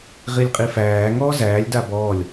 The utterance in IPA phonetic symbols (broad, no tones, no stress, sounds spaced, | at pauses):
ʁ i lʲ qʼ i f æː ŋ ɔː z æː lʲ d a b ɔː lʲ